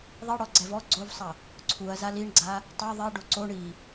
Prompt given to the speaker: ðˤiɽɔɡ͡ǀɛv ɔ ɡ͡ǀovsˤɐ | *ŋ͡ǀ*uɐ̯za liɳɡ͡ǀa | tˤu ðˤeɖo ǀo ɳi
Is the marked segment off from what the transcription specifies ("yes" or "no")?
yes